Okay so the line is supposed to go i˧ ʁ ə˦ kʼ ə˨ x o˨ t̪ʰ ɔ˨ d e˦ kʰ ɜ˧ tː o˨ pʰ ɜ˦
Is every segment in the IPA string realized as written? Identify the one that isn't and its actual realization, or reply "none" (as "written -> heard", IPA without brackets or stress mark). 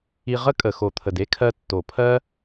ɔ˨ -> ə˨